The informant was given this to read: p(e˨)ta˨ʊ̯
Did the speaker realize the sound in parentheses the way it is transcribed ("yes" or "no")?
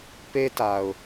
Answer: no